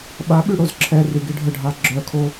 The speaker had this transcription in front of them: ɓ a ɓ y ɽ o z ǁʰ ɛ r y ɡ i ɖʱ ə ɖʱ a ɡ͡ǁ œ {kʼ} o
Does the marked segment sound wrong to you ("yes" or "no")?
yes